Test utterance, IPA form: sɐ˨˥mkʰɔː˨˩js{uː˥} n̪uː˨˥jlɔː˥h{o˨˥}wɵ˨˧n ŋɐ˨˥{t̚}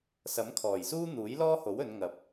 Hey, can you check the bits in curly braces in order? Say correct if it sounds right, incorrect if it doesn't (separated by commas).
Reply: correct, correct, incorrect